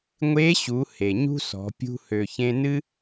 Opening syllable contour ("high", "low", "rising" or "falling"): rising